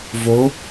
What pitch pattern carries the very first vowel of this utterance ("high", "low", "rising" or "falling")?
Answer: rising